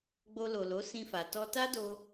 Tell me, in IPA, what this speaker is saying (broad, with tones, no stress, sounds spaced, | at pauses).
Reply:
ɡ͡b o˧ l o˨ l o˨˦ s ĩ˧ f a˨ t ɔ˧ t a˦ d o˧